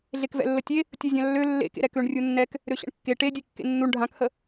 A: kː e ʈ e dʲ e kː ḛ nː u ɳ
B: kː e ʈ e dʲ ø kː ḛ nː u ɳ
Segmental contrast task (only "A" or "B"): A